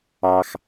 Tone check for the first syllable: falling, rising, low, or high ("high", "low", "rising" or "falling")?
low